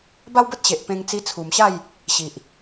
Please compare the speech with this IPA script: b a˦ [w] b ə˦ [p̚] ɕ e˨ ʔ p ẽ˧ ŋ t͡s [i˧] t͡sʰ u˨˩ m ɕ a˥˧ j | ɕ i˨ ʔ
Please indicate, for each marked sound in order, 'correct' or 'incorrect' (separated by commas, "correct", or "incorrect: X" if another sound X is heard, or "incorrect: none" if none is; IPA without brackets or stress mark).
correct, incorrect: t̚, correct